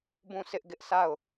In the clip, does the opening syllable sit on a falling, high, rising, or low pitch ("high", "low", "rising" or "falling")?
falling